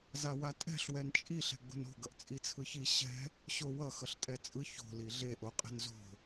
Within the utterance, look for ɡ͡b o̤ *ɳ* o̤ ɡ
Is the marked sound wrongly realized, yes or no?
yes